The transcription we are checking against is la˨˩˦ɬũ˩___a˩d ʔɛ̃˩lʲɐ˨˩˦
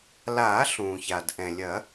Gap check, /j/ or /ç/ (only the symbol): ç